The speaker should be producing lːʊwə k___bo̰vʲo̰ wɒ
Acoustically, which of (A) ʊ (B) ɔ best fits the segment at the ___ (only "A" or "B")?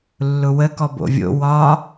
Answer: B